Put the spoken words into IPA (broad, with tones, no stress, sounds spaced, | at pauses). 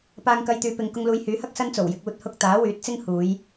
p aː˧ ŋ k ɐ˧ j t̪ yː˨ p ɪ˨ ŋ k ʊ˧ ŋ l uː˨˧ j h yː˨˥ h ɐ˥ k̚ s ɐ˥ n t͡s o˨˩ w j ɪ˧ k̚ uː˧ t̚ h ʊ˧ k̚ t̪ aː˨˥ w yː˨˥ t̚ t͡s ɪ˥ ŋ h uː˨˧ j